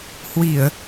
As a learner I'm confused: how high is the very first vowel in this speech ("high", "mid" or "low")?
high